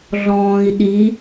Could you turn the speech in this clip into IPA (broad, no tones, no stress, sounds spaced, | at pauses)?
ɮ ɔ̃ː i̯ ɗ i